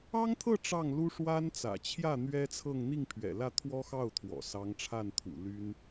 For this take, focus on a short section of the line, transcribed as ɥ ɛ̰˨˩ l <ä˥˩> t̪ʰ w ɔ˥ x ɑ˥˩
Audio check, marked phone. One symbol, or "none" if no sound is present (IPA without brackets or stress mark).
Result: ä˥˩